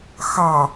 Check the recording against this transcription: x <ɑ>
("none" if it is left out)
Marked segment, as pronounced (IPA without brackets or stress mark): ɑ